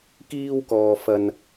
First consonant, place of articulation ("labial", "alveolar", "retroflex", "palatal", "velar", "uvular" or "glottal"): velar